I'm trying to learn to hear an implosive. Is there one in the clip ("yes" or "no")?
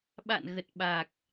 yes